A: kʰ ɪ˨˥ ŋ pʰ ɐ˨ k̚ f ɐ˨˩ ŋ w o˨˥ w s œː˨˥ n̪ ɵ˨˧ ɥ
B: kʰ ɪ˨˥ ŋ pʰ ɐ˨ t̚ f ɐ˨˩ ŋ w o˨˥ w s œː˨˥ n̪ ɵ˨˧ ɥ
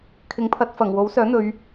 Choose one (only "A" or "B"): B